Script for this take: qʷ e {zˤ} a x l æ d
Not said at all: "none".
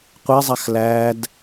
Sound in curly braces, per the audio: zˤ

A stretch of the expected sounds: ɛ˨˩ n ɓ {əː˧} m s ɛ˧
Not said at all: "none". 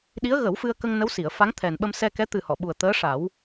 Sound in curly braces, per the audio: ə˧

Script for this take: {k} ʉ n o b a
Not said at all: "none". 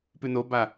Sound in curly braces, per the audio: p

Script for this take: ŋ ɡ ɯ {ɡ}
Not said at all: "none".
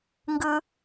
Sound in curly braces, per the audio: none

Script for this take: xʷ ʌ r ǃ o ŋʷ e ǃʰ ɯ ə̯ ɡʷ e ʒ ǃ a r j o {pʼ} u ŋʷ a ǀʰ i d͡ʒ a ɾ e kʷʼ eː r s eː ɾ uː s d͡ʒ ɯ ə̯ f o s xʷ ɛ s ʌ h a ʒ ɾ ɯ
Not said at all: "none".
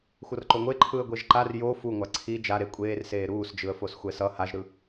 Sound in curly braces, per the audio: f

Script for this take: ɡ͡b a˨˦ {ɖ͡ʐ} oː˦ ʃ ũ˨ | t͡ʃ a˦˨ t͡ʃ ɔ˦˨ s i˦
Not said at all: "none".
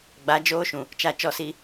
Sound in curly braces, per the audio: d͡ʒ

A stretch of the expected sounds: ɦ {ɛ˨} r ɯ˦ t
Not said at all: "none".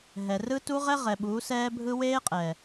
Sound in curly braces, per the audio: ɛ˨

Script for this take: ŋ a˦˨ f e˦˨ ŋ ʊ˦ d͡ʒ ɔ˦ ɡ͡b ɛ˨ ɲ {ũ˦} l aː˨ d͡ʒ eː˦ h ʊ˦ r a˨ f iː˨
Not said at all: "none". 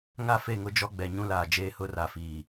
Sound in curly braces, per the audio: ũ˦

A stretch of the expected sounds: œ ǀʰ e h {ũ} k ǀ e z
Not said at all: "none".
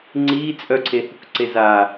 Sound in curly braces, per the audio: u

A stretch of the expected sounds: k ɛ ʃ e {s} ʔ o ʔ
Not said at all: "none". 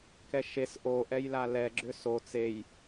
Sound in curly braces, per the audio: s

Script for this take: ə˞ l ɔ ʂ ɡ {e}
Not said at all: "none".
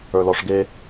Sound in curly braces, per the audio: e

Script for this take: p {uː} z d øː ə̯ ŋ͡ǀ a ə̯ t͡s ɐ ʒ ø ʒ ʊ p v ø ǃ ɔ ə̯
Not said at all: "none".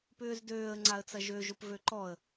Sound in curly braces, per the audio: ʏː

